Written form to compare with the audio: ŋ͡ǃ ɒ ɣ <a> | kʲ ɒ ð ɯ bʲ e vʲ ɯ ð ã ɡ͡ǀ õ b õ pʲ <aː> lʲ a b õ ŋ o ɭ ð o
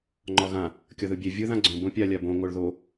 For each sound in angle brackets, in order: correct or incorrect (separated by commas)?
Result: incorrect, incorrect